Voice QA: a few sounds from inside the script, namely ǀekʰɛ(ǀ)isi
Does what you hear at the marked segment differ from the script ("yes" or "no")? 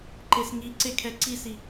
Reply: no